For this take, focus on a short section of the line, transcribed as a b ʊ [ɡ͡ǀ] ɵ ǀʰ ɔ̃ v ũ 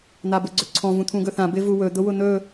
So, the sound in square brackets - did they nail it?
yes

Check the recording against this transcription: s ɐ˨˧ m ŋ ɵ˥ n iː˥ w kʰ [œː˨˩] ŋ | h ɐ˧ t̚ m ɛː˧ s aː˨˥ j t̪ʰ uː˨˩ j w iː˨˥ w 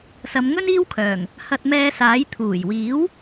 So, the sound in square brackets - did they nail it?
yes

